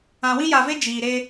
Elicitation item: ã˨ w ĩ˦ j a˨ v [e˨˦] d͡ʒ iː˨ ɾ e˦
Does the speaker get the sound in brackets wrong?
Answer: yes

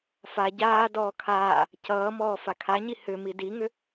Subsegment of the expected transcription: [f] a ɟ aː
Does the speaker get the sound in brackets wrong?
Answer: no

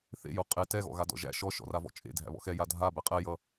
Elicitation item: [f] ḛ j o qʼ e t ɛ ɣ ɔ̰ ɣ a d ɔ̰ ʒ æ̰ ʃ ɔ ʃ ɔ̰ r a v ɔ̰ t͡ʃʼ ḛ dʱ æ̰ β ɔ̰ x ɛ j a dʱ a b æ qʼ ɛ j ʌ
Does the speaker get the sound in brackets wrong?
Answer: yes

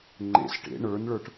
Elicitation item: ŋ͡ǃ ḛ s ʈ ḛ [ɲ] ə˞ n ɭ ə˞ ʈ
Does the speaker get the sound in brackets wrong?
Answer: yes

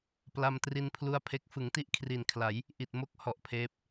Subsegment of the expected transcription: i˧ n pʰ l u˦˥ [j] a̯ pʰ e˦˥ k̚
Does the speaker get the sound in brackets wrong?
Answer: yes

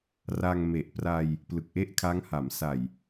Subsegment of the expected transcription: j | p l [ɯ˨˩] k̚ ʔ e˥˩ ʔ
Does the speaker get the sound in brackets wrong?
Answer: no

